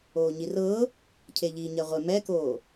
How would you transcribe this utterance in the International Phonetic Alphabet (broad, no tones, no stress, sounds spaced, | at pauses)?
oː ɲ i r ɤː | cʰ e ʎ iː ɲ ɛ ʁʷ e m ɛ k oː